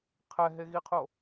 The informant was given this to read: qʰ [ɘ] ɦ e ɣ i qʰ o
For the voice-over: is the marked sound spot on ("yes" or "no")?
no